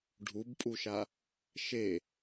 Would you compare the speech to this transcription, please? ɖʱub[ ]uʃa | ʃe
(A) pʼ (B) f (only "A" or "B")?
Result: A